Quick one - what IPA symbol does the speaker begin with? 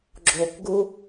ɡ͡ǁ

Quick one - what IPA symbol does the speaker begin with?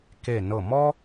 k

